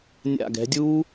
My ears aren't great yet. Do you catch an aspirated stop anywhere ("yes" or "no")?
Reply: no